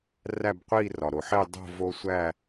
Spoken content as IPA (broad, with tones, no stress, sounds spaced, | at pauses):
r æ˥˧ b qʷ i˥˧ r ɒ˩ ɾ o˩ ħ e˥˧ dˤ o̤˥˧ v o˧ sʷ æ˥˧